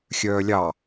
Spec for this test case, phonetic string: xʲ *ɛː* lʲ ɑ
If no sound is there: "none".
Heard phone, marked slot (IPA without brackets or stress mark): œː